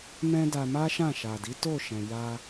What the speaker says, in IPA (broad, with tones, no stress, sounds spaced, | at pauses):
m ɛ̃˦ d a˧ m a˦ ʃ ã˦˨ ʃ a˨ d i˨˦ t o˦˨ ʃ ɛ̃˨ j a˧